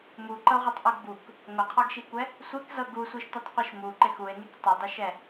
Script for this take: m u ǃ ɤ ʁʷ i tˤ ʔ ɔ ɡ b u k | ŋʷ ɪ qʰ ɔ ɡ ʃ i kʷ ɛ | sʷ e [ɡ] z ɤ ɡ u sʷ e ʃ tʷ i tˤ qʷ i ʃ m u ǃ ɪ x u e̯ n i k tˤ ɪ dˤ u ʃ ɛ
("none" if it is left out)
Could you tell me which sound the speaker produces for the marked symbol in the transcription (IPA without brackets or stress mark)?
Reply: k